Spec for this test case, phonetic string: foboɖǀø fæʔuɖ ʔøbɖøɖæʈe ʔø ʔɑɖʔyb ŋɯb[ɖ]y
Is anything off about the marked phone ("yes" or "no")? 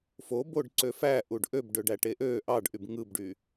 no